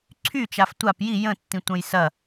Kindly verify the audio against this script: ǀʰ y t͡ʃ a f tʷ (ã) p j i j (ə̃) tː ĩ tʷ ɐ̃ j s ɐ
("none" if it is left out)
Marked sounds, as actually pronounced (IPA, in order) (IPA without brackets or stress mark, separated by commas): a, ə̃